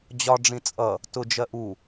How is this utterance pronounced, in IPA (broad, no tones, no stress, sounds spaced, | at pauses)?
d͡ʑ ɒ ɖ͡ʐ ĩ t͡sʼ ʌ | t ʊ d͡ʒ ɜ ʔ u